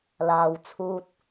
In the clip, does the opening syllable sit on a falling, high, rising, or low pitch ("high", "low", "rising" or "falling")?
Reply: low